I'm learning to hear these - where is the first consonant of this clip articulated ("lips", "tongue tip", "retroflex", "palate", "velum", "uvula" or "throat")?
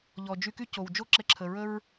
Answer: palate